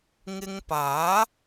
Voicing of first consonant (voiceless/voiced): voiced